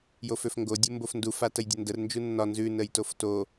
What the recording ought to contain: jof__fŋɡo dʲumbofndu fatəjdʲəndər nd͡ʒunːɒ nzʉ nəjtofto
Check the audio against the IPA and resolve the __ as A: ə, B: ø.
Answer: B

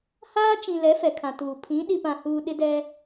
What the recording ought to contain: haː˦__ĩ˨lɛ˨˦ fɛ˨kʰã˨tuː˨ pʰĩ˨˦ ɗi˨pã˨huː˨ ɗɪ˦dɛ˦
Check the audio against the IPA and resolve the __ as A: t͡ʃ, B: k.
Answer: A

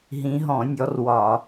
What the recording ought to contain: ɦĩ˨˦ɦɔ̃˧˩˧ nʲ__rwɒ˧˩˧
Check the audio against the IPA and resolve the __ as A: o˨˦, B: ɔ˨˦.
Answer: B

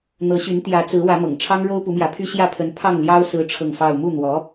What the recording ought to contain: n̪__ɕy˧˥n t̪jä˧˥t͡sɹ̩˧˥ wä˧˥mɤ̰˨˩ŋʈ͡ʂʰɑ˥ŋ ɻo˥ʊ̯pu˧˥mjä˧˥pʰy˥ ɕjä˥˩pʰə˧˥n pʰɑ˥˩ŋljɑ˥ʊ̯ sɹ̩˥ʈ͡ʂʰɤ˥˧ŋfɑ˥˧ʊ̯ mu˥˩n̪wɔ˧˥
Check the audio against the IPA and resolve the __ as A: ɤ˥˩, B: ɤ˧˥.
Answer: B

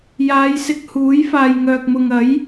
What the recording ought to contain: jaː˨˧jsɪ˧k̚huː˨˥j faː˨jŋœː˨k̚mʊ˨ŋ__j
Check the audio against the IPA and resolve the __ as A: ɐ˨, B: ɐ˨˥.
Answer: B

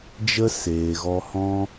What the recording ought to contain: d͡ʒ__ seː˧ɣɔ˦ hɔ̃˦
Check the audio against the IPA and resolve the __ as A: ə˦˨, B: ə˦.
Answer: B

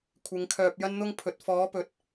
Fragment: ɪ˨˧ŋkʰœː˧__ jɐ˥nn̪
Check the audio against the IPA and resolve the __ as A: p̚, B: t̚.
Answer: A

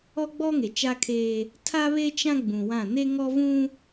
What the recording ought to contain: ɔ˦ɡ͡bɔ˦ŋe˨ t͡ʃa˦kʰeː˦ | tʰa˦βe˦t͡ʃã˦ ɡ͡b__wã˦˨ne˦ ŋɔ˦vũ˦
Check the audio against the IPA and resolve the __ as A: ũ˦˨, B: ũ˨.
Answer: B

